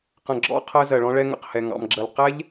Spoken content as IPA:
q ə̃˨ ɡ͡ǁ ɔ̰˦˨ qʰ əː˧ z ɜ˨ ɭ ɔ̃˧ ɭ ɛ˧ ŋ ə̰˨ q h ɛ˨ ŋ ɑ̰˨ m ɡ͡ǁ əː˨ l q ɛ˦ ʎ

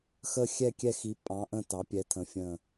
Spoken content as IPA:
x ə˦˨ xʲ ɛ˦˨ kʲ ɛ˦˨ x i˨˥ pʼ ɑ̃˨˥ ʔ ə̃˦˨ t ɑ˨˥ pʲ ɛ˨˥ tʰ ə̃˨˥ fʲ ə̃˦˨

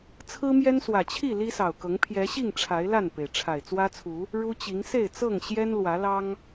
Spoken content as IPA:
t͡sʰ ɹ̩˦ m j ɛ˦ n s w ä˨˩ t͡ɕʰ i˥˨ l i˦ s ɑ˨˩ ʊ̯ k ɤ˨˦ ŋ pʰ j ɛ˨˦ ɕ i˥˨ ŋ ʈ͡ʂʰ a˨˦ ɪ̯ l a˥˨ n p e˩ ɪ̯ ʈ͡ʂʰ a˨˩ ɪ̯ t͡s w ä˦ t͡sʰ u˨˦ | ɻ u˦ t͡ɕ i˨˦ ŋ s e˥˨ ɪ̯ t͡s ɤ˥˨ ŋ ɕ j ɛ˦ n l w ä˨˦ l ɑ˦ ŋ

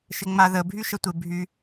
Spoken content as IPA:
ʃ ɪ ŋ͡m a ð ə bʱ y ʃ ə tʷ ɪ bʱ y

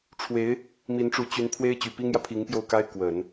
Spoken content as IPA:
ʈ͡ʂʰ w e˧˥ ɪ̯ | m i˧˥ n ʈ͡ʂ u˧˥ t͡ɕ y˧˥ n pʰ w e˥ ɪ̯ t͡ɕ y˨˩ p i˥ ŋ j ä˨ pʰ i˧˥ ŋ p j o˥˩ ʊ̯ k a˥ ɪ̯ k w ə˨˩˦ n

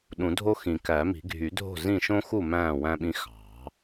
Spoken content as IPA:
ɗ ũ˨˩˦ dʱ o˦ x ĩ˨˩˦ k æ˨˩˦ m i̤˨˩˦ ɡʱ y˨˩˦ dʱ o̤˥˩ z ĩ˥˩ ʃ õ˦ x u˥˩ m æ̃ː˥˩ w æ̃˦ ɓ ĩ˦ x ɑ̤˨˩˦

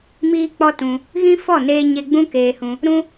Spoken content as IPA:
m iː˦ k͡p ɔ˦ t ũ˧ | ɣ ĩ˦ f ɔ˦˨ n eː˧ ɲ e˧ ɡ͡b ũ˦ k eː˧ h ũ˧ | ɾ ũ˦

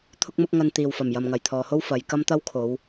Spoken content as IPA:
t̪ʰ ʊ˥ k̚ m ʊ˥ k̚ ŋ ɐ˧ n t̪ iː˨ w f ɐ˨˩ m j ɐ˨ m ŋ ɐ˨˩ j t̪ʰ ɔː˨ h o˥ w f ɐ˨˧ j k ɐ˥ m t̪ ɐ˥ w kʰ o˨˧ w

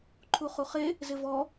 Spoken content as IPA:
ǃʰ u χ u χ e | z ɪ v ɔ

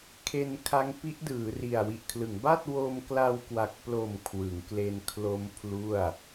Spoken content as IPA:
kʰ e˧ n kʰ a˦˥ ŋ p i˦˥ ʔ d ɯː˩˦ r i˨˩ a̯ w i˨˩ ʔ kʰ l ɯ˩˦ ŋ b a˥˩ t̚ w o˧ m k l a˧ w k w a˨˩ k̚ p l o˨˩ m kʰ w ɯ˩˦ ŋ k l e˧ n kʰ l o˦˥ m pʰ l u˥˩ a̯

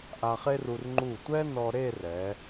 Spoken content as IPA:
ʔ a˧ χ e˥ r u˧ r ŋ͡ǃ u˧˩ tʷ ɛ˥ n ɔ˧ ɾ e˥˧ r ɛ˩˧

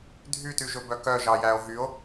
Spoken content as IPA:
dʱ y t y ʒ ɵ b œ k œ ʒ ɑ j æ o̯ ɦ y o̯

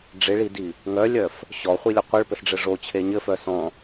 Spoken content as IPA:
ɖ͡ʐ ɪ ɭ i d i | ŋ œ lʲ œ f | ɕ ɔ χʷ i lʲ ɘ qʷ ɘ ɭ p ɘ s ɖ͡ʐ ɘ ʐ o t͡ɕʰ e ɲ ɘ f œ s ɔ̃

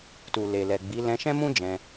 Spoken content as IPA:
t u˨ l e˨ l ɛ˨ ɡ͡b i˨˦ l ɛ̃˧ ʃ ɛ̃˦ m ũ˦ d͡ʒ ɛ̃˧

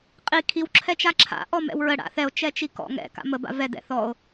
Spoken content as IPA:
qʼ i kʰ i w ǁʰ ɛ t͡ʃ a ǁʰ a̰ ʔ ɔ m ɛ̰ w ɹ ə ɽ a̰ θ ɛ o̯ t͡ʃ ɛ t͡ʃ i k ɔ̰ ŋ ɛ̰ k a̰ m ə b a̰ v ɛ d ɛ̰ θ ɔ o̯

